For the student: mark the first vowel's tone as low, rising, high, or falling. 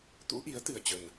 rising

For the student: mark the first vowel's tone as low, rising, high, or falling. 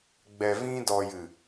low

